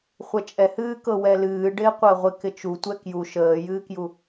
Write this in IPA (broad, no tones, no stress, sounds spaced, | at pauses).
χʷ ɛ t͡ʃʼ ɛ h ɨː k ɤ w ɛ l ɨː ɖ ɪː qʷ əː ʁʷ ɪ k ɪ t͡ʃ u tʷ ɛ k j u ʃ əː j ɨː k j u